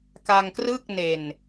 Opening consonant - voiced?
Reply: no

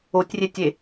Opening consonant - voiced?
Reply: no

